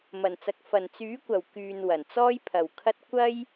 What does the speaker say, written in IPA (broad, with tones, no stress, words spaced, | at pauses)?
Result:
mɐ˨˩nt͡sɐ˨k̚ fɐ˨˩nt͡syː˨˥kʷɐ˨˩w kyː˨n wɐ˨˩nt͡sɔː˥jpʰɐ˨wkʰɐ˥t̚ kʷɐ˥j